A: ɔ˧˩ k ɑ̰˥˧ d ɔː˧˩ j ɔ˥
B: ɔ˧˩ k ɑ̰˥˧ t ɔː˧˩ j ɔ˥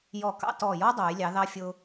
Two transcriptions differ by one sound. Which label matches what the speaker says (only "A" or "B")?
B